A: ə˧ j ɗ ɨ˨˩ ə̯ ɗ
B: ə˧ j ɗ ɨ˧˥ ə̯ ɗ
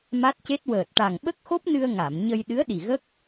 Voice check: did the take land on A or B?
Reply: B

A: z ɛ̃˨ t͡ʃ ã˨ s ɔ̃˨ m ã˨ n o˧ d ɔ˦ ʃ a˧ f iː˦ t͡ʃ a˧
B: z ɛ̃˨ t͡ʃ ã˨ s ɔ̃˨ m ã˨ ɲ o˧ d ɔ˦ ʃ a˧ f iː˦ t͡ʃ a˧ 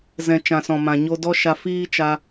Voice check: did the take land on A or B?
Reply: B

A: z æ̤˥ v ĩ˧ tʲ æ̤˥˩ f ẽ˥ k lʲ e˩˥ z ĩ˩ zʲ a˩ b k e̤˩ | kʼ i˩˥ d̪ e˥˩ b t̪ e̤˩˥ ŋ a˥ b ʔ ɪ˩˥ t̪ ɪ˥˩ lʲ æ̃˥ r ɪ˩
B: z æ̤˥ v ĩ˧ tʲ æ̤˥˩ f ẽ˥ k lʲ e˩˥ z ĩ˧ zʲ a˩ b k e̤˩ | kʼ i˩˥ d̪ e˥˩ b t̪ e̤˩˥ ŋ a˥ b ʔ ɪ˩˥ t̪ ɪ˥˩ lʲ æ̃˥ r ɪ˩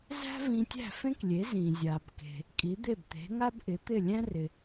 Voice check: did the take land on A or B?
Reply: A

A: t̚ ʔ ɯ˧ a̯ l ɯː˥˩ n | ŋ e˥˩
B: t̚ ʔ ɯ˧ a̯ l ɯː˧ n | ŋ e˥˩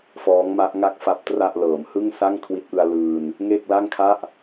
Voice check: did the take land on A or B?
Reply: B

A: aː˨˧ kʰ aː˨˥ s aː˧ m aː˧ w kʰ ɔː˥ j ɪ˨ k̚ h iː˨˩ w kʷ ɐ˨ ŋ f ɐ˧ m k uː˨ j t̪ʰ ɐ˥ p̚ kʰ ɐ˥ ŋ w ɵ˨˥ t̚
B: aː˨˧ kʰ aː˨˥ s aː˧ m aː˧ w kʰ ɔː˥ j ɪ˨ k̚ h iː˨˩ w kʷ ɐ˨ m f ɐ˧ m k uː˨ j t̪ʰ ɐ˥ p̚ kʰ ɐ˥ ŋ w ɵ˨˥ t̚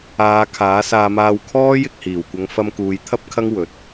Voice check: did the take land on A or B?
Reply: A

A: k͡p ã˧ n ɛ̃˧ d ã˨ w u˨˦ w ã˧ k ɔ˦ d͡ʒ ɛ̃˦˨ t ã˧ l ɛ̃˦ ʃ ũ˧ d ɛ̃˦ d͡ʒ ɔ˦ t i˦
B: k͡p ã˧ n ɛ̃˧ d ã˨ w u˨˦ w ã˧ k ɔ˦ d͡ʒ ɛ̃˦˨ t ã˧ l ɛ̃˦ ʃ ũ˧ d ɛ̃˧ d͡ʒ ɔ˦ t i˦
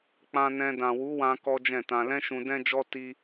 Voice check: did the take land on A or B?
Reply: A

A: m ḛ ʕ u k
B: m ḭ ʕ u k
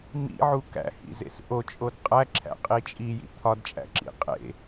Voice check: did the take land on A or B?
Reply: B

